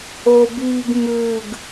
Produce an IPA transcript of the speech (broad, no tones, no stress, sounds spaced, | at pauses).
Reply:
o b iː ɡ m ʉː ɡ